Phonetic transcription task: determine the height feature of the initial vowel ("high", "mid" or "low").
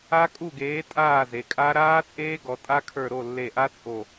low